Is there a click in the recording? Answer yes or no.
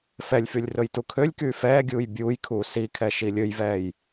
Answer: no